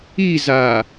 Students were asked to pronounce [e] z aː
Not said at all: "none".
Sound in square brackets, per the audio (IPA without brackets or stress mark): i